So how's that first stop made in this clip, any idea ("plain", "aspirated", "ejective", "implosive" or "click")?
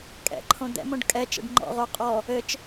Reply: ejective